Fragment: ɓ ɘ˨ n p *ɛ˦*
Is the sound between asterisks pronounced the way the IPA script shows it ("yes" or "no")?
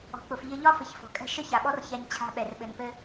no